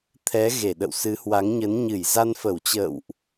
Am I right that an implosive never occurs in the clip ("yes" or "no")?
no